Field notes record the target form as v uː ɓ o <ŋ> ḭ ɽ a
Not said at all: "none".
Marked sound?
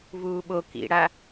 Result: k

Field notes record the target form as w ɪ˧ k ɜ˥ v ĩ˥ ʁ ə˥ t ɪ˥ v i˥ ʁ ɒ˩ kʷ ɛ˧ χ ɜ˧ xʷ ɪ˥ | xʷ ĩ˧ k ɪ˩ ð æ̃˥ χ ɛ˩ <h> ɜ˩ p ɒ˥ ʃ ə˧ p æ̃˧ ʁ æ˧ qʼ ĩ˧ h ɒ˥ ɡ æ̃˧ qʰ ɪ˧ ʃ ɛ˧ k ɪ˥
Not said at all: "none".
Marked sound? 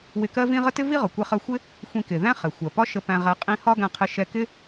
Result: xʷ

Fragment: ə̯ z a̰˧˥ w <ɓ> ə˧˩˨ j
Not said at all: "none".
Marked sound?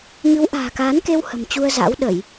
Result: ɗ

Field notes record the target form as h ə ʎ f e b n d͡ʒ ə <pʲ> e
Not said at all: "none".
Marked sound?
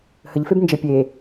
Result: pʲ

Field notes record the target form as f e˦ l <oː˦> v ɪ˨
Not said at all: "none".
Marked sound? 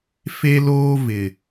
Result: oː˦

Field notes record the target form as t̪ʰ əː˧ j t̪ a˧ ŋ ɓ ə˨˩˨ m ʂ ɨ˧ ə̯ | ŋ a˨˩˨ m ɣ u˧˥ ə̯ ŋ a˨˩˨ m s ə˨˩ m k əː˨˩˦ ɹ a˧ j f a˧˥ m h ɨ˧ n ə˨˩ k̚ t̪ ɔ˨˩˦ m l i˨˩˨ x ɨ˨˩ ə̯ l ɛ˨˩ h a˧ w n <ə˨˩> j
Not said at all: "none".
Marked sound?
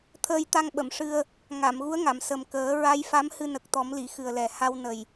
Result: ə˨˩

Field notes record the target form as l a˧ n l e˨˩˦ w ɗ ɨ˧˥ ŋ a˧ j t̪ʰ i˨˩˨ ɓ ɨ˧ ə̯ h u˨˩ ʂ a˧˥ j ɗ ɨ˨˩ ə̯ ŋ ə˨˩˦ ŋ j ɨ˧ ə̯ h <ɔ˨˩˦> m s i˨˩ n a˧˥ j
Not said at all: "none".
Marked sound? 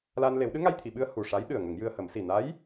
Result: ə˨˩˦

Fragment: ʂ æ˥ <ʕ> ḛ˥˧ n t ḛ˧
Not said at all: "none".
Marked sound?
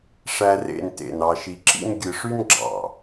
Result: r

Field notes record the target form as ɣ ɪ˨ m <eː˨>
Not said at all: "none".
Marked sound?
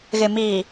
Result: iː˨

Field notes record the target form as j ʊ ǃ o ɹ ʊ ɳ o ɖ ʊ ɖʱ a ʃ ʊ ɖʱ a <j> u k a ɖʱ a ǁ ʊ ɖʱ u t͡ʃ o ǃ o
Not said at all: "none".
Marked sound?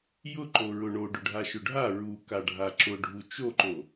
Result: ɹ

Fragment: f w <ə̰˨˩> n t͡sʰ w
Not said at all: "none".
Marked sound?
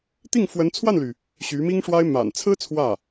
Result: ə˧˥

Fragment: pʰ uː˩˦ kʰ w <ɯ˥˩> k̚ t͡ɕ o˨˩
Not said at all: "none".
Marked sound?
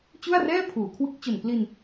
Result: ɯ˦˥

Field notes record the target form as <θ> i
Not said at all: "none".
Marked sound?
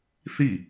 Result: θ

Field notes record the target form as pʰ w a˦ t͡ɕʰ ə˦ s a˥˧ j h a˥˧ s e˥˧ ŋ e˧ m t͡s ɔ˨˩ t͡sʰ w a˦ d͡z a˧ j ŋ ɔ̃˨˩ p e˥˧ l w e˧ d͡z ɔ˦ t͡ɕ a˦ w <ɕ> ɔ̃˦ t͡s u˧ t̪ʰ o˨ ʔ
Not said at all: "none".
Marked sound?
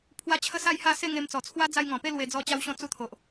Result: ɕ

